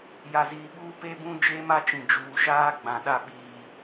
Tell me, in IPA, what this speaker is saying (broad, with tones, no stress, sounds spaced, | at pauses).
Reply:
j a˨ z iː˨ ɓ uː˦ p e˦ b ũ˦ d͡ʒ e˦ m a˦ t͡ʃ ĩ˨ d͡ʒ uː˨ ʃ aː˦ ɡ͡b ã˨ ɗ a˦˨ ɓ iː˦